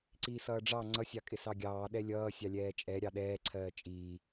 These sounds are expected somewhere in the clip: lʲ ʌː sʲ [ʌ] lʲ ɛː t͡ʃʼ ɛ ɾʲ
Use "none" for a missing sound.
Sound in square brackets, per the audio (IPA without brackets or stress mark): ɑ